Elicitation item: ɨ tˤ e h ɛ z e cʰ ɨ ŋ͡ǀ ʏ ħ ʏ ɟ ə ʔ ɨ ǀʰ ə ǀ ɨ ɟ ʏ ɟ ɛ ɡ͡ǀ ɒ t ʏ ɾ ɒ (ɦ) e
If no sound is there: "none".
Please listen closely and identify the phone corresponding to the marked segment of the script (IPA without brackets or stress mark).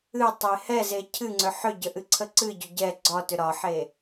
ħ